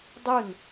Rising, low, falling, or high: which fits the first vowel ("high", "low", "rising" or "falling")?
falling